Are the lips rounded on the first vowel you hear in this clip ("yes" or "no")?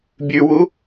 yes